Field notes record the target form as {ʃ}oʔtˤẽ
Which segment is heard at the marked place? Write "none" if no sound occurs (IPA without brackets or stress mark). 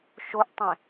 ʃ